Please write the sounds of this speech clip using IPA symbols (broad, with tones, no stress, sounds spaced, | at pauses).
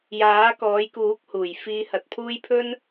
j aː˨˥ k ɔː˨˥ j k uː˨˥ k̚ h uː˨˩ j f iː˨˧ h ɐ˨ t̚ pʰ uː˥ j pʰ ɵ˥ n